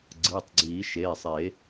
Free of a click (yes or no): no